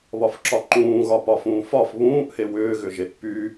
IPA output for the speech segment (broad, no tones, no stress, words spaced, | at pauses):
βɒfǁɒǃũːɣɒ pɒfũːfɒf βũːʔhe wʏːɣʏʒeʔ py